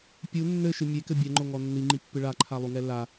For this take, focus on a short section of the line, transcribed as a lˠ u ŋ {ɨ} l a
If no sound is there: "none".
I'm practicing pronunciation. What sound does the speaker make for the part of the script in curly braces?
ɛ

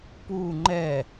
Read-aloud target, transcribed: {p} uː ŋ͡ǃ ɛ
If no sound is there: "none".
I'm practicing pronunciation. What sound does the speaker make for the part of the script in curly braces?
p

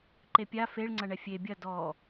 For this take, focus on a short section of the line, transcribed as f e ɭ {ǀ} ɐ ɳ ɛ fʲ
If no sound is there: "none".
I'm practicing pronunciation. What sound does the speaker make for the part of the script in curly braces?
ŋ͡ǀ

